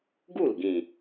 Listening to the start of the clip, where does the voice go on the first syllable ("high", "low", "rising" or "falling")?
falling